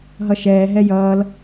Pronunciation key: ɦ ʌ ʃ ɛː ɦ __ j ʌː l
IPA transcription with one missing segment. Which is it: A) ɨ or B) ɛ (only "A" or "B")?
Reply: B